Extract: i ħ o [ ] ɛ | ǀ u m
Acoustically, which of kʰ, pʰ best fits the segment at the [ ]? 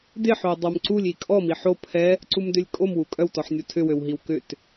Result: pʰ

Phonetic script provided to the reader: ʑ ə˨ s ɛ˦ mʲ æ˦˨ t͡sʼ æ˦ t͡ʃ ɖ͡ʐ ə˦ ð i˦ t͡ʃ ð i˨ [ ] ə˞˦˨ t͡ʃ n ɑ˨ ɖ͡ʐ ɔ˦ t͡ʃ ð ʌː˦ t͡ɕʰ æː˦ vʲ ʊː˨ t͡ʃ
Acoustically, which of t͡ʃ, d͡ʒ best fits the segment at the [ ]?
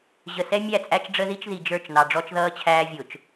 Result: d͡ʒ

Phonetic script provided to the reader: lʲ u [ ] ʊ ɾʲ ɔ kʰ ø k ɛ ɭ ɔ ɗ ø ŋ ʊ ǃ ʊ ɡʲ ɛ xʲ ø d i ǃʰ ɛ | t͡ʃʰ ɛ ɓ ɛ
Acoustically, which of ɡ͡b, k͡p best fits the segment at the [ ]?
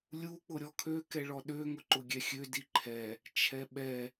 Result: k͡p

